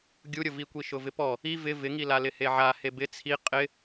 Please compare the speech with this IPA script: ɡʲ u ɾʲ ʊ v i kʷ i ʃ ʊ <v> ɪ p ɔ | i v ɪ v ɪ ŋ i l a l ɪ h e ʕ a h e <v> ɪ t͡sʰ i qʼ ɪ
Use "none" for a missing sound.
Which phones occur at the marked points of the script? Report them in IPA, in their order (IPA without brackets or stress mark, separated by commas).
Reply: v, b